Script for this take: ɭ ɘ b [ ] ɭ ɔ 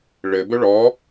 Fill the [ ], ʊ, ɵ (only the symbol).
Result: ɵ